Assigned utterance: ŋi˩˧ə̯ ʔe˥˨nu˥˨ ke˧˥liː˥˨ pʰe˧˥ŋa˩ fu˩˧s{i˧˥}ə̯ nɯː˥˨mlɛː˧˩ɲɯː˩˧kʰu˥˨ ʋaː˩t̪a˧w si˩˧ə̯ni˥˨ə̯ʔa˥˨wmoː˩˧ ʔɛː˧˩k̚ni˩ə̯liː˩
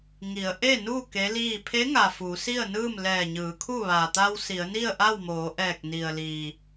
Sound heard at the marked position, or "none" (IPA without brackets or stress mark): i˥˨